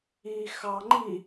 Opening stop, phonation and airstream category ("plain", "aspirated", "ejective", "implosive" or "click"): click